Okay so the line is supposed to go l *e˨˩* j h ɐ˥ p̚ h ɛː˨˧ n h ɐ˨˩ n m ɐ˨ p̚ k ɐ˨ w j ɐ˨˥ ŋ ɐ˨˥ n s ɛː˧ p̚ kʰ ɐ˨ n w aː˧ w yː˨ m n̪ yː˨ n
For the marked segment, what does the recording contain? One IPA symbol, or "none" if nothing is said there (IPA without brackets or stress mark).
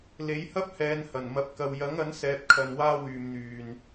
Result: e˨˥